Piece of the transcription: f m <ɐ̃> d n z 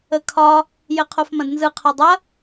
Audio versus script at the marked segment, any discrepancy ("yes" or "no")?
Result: no